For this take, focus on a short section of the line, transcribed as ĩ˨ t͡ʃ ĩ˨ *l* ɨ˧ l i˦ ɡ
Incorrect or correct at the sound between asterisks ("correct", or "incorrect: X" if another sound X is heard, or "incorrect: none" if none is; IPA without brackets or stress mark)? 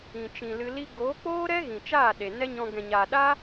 correct